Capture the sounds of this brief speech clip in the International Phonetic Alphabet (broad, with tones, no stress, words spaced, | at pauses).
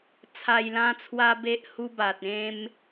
t͡sʰa˨˩jlã˧t͡sʰwa˧ be˦ʔhu˦ba˨t̚ ẽ˦m